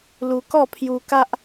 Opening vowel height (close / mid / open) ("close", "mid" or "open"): close